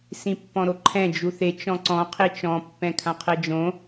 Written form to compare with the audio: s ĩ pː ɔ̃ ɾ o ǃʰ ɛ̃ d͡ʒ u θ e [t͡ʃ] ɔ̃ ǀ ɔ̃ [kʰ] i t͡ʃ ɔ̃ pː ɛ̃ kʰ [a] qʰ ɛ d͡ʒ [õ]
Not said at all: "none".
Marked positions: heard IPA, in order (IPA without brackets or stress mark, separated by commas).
t͡ʃ, qʰ, ã, õ